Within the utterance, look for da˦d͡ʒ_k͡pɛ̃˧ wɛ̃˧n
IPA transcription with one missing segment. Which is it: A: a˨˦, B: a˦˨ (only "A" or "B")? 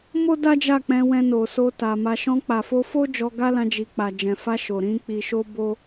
B